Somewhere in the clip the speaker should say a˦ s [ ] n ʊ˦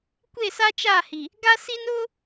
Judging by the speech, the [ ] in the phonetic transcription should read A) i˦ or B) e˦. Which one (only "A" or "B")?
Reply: A